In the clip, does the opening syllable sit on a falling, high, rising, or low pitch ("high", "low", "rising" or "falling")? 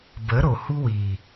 rising